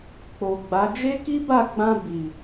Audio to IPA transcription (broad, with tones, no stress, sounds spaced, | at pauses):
k͡p o˨ ɡ͡b a˨˦ d͡ʒ e˦ k i˦ b a˦˨ ɡ͡b ã˧ b i˨